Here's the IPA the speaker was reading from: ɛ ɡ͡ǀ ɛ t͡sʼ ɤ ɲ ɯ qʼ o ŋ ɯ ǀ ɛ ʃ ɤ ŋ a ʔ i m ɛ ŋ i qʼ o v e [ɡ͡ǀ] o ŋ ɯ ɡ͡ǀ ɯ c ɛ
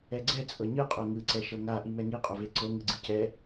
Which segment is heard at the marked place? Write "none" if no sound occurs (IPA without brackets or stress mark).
ǀ